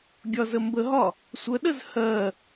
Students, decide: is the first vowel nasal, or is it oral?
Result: oral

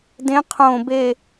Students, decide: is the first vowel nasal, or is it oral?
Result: nasal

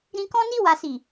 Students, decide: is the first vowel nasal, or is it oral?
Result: nasal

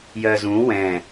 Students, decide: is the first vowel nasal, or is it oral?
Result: oral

